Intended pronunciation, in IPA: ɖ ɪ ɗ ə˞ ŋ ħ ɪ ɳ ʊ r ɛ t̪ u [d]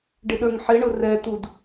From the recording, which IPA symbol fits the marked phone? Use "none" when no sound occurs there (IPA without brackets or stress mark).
d